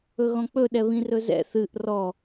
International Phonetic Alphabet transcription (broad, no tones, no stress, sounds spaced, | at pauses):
ɵ ɣ ɔ̃ k͡p ɵ ɗ ɛ β ĩ r ɵ z ɛ̰ θ ɨ ʔ r ɔ